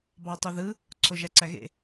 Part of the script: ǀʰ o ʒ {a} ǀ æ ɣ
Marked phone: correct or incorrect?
incorrect